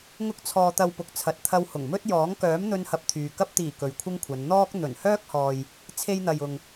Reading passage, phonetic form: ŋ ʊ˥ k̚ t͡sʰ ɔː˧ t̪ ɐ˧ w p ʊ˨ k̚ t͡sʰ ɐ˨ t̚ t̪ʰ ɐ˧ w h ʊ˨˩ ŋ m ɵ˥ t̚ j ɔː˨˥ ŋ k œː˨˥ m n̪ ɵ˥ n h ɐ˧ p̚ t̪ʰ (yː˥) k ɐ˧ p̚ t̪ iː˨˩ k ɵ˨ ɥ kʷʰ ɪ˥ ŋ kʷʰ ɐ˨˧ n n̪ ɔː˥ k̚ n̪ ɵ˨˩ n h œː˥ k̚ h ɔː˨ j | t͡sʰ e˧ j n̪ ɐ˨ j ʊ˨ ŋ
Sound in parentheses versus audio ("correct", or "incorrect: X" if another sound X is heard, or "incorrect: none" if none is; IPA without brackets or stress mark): incorrect: yː˨